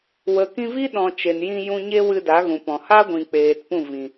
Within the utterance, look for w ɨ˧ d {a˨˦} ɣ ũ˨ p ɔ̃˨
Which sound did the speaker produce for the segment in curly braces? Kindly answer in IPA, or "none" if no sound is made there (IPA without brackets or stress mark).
a˨˦